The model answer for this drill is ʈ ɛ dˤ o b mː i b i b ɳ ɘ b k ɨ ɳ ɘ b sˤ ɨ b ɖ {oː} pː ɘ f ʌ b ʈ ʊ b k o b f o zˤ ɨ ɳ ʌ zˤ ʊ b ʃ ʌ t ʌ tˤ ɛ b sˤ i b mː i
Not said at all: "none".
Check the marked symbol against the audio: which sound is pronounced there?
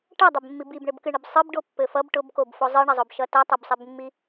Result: o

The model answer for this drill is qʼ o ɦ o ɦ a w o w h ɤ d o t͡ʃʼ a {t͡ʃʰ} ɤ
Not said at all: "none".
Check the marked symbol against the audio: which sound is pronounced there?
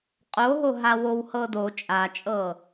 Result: t͡ʃʼ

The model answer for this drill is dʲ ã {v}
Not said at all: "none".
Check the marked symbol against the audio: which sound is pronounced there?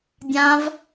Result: v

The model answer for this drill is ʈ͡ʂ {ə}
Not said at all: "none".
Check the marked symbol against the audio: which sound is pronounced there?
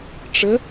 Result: ə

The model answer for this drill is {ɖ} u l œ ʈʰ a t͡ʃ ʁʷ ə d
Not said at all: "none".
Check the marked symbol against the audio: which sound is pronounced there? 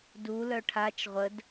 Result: d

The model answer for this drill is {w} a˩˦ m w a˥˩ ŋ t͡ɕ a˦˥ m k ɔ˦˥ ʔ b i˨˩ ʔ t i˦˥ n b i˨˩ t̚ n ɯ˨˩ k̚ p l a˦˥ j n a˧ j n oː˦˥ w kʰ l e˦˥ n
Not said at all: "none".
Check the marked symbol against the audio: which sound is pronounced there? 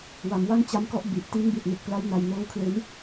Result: w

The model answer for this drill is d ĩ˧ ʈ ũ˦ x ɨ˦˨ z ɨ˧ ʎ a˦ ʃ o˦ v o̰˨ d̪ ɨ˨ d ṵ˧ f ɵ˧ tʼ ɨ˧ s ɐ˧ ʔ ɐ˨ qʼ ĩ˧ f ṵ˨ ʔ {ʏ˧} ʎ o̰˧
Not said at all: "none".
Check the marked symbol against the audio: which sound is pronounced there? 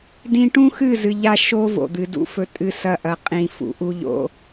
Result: u˧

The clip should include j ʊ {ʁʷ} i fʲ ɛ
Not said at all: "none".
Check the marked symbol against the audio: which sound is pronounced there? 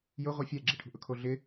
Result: ʁʷ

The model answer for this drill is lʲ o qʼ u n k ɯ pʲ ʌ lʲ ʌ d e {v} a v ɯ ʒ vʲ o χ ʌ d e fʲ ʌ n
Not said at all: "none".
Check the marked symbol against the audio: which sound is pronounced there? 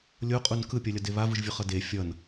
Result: β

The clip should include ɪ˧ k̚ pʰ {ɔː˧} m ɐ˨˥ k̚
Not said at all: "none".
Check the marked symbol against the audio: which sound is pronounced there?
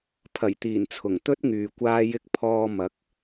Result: ɔː˧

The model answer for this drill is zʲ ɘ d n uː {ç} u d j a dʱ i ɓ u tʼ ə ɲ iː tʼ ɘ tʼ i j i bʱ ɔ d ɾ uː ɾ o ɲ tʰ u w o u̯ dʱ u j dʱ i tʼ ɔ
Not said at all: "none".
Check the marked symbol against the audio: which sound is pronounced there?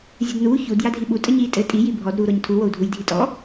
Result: ç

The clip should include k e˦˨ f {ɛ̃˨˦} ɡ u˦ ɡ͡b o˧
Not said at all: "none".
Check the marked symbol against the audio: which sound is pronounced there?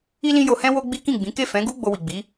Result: ɛ̃˨˦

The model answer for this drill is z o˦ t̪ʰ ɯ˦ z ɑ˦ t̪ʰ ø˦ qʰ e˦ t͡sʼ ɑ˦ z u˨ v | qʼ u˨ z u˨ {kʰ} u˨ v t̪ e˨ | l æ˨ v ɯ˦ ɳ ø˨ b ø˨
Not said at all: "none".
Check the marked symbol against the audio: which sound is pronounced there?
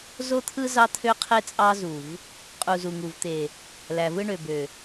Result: ŋ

